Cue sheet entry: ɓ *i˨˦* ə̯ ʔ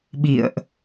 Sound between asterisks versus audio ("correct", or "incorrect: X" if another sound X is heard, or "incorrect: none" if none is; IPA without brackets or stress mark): incorrect: ḭ˧˨